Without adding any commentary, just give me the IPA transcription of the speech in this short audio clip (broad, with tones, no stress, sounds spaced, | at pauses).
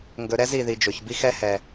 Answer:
ŋ ɡ ɵ˨ ɾ ɛ˦ z i˨ ð i˨ d͡ʒ ɵ˨ ç b i˦ x ɛ˦ h ɛ˨